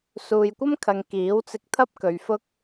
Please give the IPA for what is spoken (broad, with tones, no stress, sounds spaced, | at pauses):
s uː˨ j kʷ ɐ˥ m kʰ ɐ˨ ŋ k iː˨˥ w t͡s ɪ˧ k̚ t̪ʰ ɐ˥ p̚ k ɵ˨ ɥ f ʊ˥ k̚